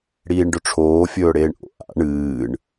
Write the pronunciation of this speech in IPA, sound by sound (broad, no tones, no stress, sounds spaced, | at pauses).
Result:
ɽ iː ɳ ɖ ɵ ʈ͡ʂʰ oː fʲ ɵː ɽ eː ɳ ʔ o̰ ʔ a̰ ɳ ɨː ɳ